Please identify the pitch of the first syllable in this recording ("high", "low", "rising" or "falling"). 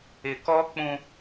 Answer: low